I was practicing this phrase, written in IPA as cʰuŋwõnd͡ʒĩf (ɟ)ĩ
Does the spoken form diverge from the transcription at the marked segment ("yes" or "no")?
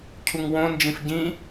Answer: no